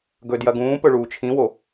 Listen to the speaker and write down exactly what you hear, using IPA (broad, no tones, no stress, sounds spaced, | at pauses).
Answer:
ɡ ɵ d j ɐ ɡ ũː p ɵ ɭ uː t͡ʃʰ ĩ w o